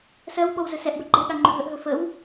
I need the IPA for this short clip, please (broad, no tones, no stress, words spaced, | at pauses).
sɜw ɓɔwzɵsɛʔbə ɡ͡ǃɛɠa ŋ͡ǃɵɦəʔɦɵ fəw